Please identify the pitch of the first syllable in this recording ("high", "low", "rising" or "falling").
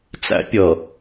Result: high